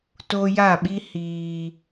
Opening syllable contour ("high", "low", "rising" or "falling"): high